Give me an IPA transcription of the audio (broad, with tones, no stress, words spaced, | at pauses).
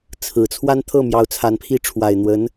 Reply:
t͡sʰɹ̩˨˩ t͡sʰwa˥n t̪ʰɤ˥˩mjɑ˧˥ʊ̯ t͡sʰa˧˥npʰi˥ ʈ͡ʂʰwa˨˩ɪ̯n̪wə˧˥n